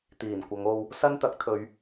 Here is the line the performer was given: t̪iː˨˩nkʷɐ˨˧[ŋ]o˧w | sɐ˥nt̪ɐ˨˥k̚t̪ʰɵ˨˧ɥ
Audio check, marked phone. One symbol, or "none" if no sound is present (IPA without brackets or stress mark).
ŋ